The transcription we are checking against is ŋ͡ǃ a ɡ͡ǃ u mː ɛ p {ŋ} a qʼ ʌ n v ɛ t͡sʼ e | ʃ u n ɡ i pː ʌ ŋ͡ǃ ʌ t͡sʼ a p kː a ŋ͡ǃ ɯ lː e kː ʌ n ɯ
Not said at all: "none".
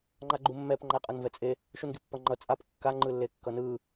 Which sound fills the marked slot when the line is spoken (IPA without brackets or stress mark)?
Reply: ŋ͡ǃ